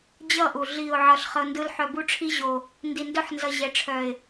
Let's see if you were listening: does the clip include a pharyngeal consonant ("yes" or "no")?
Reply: yes